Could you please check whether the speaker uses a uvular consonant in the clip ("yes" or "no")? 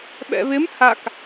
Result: no